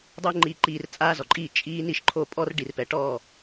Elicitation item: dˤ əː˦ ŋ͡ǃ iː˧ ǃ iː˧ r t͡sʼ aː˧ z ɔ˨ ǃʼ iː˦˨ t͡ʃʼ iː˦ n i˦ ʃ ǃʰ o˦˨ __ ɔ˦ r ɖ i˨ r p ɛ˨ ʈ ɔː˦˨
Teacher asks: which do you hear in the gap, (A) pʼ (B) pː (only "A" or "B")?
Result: A